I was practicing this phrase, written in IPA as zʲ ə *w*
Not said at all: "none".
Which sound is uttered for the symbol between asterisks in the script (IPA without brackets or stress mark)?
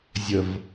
v